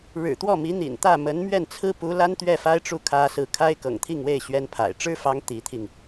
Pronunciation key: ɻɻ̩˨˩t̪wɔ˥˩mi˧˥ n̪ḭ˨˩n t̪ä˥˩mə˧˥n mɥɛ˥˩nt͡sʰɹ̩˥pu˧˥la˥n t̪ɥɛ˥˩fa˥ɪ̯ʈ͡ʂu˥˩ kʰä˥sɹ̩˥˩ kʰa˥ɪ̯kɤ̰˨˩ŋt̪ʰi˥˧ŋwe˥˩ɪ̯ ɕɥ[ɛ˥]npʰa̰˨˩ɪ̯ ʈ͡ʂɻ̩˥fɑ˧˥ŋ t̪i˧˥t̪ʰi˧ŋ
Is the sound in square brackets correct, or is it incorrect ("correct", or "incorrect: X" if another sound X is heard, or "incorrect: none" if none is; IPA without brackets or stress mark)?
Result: correct